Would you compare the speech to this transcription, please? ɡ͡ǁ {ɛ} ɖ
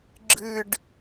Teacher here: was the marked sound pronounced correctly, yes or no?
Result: no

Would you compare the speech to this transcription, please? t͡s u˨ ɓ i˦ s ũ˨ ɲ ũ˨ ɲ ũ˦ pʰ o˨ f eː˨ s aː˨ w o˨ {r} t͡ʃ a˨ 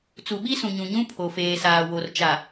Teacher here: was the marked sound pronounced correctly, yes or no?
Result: yes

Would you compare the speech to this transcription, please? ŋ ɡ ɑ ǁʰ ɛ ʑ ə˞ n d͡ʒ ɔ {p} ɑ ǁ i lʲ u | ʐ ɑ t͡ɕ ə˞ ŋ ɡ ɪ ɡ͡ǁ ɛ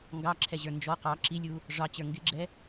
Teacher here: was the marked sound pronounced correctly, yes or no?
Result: no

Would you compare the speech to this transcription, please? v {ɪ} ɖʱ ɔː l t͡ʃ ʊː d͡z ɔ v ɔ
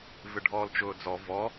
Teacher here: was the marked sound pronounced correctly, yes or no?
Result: yes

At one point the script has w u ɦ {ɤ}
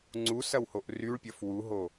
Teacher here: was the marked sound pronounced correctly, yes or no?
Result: no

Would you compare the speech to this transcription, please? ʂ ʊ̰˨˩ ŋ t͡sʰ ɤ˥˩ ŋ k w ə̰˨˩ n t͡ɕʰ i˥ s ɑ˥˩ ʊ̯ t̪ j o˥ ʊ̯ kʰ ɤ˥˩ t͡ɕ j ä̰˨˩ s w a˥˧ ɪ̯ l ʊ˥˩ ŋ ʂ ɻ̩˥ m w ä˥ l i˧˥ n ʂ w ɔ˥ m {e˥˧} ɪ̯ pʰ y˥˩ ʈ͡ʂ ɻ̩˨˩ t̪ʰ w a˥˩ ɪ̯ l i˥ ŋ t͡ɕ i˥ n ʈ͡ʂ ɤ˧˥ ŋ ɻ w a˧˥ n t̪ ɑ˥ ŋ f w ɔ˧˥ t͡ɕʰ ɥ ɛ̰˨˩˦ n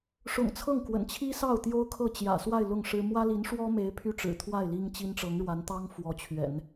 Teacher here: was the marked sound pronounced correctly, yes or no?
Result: no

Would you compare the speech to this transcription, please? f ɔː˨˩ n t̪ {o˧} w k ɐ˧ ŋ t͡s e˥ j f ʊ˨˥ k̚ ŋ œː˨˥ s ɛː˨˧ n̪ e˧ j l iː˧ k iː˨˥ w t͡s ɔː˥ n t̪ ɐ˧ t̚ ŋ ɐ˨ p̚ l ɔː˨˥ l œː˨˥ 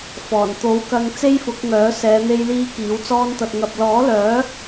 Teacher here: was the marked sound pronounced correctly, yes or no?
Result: no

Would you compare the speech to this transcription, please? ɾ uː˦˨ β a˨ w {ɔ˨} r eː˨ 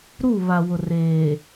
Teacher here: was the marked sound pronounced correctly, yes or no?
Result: no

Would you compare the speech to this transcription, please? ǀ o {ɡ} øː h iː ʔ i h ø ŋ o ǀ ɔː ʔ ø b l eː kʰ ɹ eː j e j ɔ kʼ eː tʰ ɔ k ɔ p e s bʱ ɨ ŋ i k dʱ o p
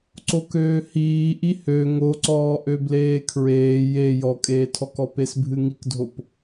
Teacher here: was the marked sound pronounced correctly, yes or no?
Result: no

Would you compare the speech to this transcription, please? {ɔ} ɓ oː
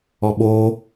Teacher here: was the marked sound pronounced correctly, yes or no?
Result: yes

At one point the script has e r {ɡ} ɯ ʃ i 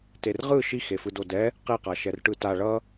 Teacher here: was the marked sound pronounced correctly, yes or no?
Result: no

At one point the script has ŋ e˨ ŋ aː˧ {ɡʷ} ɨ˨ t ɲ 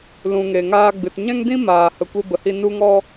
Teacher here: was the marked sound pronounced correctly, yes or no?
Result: no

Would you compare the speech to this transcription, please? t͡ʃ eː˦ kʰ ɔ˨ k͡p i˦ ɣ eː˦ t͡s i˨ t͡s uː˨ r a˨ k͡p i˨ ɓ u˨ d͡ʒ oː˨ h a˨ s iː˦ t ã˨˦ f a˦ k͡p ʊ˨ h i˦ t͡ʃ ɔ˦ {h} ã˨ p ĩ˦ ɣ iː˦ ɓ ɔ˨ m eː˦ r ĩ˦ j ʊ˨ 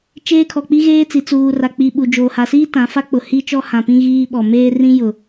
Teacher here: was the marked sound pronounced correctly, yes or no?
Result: yes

